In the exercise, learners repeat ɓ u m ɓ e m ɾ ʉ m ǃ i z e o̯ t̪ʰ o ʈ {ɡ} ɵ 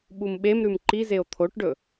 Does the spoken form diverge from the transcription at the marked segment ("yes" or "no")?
yes